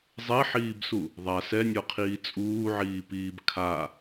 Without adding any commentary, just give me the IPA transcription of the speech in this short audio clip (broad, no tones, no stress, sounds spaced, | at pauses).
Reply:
zˤ e ħ iː b s u | ðˤ a s ɛ nʲ ɔ qʰ iː t͡sʼ uː ʕ iː p iː b kʰ a